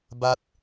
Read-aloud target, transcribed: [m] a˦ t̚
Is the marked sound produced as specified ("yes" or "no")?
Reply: no